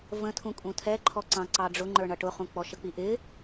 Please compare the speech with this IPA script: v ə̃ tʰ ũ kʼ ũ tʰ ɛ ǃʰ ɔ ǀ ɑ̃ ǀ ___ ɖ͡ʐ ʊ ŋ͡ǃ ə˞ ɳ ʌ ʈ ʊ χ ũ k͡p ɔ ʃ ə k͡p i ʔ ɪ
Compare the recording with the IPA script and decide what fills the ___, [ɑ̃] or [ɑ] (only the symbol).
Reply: ɑ